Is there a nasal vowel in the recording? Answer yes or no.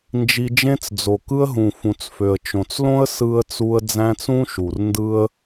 yes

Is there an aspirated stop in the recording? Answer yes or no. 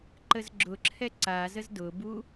yes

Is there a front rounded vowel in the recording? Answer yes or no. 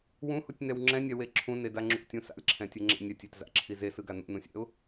no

